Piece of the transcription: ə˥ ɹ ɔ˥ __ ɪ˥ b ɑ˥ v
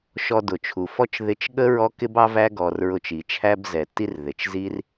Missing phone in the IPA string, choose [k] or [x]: k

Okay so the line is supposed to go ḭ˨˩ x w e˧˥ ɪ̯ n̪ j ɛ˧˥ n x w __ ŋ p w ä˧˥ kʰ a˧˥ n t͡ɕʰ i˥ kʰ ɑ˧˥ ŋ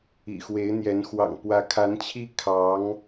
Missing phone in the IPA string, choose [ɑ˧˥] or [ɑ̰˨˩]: ɑ̰˨˩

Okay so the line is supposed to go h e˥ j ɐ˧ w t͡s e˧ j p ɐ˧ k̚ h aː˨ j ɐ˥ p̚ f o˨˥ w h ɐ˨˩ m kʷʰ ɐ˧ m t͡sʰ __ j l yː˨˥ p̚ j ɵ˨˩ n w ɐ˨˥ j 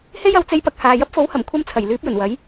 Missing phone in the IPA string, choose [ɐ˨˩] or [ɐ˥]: ɐ˨˩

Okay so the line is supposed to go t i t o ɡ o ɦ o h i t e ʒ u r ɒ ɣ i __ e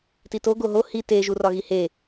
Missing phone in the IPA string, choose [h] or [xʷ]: h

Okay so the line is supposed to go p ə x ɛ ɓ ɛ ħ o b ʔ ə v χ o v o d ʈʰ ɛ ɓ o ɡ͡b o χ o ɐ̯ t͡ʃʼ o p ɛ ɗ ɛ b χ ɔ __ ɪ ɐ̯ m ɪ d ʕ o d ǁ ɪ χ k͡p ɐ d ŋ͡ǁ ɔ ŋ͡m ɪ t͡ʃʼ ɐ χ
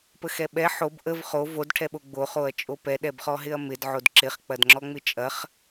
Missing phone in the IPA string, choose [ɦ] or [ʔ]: ɦ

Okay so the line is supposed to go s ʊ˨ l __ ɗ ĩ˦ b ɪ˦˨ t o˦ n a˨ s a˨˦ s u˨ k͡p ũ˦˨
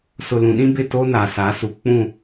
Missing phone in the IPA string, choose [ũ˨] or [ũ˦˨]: ũ˨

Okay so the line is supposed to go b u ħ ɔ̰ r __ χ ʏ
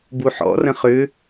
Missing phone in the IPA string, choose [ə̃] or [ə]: ə̃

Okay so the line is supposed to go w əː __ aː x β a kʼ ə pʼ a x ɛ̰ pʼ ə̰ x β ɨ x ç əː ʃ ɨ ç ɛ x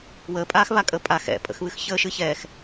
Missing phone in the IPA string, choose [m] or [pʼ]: pʼ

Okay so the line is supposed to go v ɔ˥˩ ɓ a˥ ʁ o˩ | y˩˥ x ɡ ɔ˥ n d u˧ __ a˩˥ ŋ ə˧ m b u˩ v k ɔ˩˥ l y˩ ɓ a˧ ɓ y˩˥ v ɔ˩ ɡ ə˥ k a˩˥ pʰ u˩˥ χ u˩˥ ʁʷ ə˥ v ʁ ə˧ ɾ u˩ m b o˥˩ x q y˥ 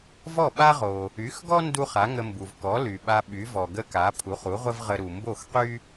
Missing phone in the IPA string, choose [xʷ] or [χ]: χ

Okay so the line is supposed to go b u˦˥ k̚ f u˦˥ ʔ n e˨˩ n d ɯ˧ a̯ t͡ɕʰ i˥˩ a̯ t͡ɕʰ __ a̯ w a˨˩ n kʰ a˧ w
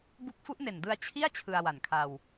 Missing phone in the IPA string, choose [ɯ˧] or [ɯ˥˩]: ɯ˧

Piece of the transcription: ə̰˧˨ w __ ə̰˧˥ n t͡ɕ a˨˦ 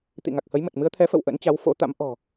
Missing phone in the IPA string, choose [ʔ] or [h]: ʔ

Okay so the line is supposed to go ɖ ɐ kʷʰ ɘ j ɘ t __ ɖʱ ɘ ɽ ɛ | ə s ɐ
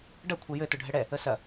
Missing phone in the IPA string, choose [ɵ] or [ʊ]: ʊ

